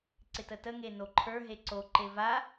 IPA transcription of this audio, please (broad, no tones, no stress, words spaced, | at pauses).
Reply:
ǀɪtətə ŋenoǃʰə˞ ɦeǀo ǃeva